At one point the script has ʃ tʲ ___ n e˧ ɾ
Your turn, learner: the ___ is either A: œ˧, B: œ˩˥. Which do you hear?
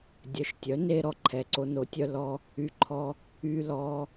B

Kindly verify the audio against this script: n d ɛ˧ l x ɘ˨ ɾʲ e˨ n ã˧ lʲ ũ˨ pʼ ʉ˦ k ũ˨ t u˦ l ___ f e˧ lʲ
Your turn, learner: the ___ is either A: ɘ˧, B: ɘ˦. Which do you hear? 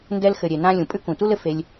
A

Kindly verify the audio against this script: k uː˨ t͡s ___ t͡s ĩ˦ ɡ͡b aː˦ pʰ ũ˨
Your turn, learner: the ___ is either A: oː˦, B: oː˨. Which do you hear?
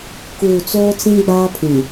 A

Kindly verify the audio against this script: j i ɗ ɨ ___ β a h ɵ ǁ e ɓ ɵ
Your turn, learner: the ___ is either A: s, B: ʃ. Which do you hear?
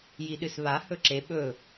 A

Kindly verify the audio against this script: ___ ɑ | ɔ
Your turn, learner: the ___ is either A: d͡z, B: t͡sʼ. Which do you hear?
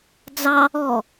A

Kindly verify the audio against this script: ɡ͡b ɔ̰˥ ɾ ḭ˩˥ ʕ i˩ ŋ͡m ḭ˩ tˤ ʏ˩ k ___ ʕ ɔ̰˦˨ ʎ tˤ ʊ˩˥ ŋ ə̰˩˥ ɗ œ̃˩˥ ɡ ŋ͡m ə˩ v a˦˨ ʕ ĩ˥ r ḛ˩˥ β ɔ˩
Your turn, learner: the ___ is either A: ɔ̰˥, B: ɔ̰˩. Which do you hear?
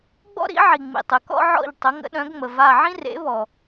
A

